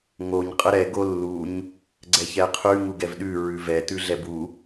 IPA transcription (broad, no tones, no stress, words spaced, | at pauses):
ŋoɲ qʼəɾɛ ɡolːuɲ | ɡ͡ǀɛçɛqʰʉ ŋuɡɛvɗʉ ɹʉvɛ tʉɮɛbu